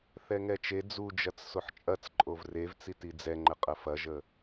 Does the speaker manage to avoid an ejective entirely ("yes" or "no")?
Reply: no